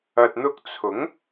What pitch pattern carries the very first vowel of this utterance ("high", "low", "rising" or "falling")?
low